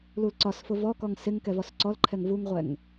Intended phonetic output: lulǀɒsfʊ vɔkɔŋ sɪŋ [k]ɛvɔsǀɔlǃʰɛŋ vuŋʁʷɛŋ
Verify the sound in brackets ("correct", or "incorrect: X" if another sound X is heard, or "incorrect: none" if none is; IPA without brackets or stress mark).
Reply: correct